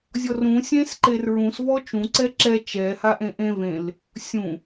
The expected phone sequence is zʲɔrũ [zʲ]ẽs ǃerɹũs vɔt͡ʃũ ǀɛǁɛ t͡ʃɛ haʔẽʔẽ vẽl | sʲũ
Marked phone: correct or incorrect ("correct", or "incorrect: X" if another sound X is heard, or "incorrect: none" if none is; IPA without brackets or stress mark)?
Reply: incorrect: sʲ